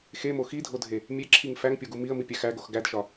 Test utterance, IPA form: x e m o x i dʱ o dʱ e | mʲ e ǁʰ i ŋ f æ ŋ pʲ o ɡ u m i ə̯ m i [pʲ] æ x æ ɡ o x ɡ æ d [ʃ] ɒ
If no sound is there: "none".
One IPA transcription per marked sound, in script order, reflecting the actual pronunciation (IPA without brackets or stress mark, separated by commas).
pʲ, ʃ